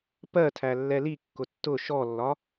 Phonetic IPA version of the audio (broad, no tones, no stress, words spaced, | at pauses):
pɜtʰæ lːɛlikːʊ tːʊ ʃɔlːɒ